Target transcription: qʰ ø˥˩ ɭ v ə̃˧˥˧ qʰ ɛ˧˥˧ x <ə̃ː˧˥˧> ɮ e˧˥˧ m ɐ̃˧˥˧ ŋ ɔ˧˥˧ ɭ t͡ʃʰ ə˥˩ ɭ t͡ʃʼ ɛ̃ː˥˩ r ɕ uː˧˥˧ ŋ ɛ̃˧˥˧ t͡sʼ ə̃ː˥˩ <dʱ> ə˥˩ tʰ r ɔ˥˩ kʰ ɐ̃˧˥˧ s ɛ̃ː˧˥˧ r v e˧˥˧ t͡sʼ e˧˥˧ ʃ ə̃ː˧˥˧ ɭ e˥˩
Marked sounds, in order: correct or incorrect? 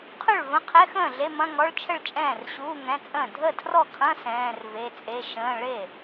incorrect: ə̃ː˥˩, correct

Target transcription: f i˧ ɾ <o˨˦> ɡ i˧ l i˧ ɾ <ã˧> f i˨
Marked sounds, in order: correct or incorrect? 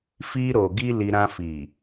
incorrect: o˨, correct

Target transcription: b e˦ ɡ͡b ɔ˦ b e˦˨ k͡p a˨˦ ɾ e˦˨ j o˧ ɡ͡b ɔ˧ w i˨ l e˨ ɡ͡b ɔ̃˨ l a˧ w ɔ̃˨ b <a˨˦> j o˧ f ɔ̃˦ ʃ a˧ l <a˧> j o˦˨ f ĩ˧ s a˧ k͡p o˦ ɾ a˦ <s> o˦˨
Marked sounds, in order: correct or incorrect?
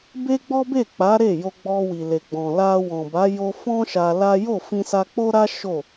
correct, incorrect: a˦, incorrect: ʃ

